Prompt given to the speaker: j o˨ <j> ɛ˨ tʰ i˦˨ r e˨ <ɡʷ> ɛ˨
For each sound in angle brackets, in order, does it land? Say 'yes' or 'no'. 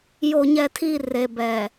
no, no

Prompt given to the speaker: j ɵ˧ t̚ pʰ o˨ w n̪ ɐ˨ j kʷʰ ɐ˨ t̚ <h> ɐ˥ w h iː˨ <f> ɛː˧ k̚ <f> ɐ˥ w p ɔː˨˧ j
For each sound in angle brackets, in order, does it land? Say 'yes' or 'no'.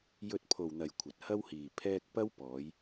yes, no, no

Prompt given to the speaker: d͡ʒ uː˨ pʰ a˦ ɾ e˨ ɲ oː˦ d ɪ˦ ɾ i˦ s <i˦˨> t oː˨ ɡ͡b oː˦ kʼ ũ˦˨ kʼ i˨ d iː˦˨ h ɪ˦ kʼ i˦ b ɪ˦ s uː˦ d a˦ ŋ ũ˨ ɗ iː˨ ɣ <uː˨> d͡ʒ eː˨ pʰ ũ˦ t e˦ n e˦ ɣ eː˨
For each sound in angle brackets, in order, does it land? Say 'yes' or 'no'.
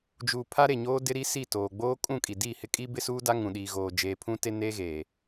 yes, no

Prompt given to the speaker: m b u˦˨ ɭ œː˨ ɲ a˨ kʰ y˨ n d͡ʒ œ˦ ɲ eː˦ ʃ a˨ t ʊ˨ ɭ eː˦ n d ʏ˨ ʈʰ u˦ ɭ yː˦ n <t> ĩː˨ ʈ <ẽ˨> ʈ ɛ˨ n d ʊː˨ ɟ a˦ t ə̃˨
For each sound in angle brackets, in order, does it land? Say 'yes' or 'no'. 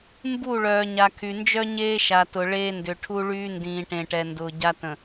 no, yes

